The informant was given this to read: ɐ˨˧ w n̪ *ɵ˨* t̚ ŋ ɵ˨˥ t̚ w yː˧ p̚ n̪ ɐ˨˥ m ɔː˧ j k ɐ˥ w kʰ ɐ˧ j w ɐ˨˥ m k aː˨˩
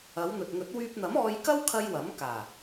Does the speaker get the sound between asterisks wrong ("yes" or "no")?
no